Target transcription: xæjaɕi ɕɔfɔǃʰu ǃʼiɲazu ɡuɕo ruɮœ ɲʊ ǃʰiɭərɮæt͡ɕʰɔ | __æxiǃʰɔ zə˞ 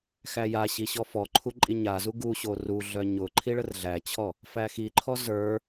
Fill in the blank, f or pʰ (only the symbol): f